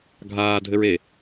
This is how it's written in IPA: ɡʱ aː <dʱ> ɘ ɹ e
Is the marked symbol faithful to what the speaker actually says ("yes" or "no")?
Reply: yes